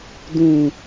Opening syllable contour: low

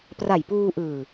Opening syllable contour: low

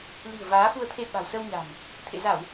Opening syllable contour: low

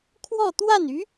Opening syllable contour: falling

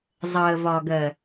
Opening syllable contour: low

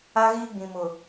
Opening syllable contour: high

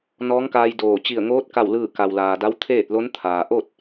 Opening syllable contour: rising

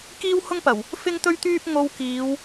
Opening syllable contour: high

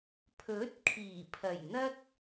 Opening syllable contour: rising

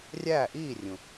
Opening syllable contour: falling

